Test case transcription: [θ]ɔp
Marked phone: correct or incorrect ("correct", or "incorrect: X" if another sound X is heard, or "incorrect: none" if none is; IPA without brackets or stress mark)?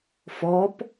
incorrect: f